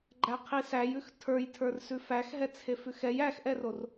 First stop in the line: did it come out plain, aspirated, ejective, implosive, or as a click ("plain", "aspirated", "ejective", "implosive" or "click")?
click